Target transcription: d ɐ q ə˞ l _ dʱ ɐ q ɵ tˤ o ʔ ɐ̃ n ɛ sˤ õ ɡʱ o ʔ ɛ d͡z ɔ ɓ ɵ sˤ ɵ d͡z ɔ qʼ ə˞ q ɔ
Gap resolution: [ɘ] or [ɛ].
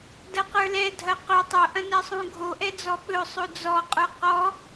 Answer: ɛ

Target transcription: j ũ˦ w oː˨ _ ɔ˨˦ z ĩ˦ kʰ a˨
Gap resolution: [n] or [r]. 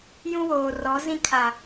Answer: r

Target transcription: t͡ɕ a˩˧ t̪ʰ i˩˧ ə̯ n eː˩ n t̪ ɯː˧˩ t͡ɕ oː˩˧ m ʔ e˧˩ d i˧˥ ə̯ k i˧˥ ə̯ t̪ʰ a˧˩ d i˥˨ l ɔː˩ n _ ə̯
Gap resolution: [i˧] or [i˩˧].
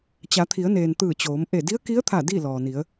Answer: i˩˧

